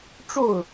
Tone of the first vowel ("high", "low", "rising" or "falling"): falling